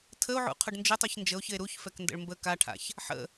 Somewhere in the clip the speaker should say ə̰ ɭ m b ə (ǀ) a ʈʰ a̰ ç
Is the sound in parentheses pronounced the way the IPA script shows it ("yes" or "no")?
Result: no